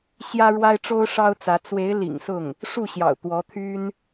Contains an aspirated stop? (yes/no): yes